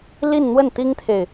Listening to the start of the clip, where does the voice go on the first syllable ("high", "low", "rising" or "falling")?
falling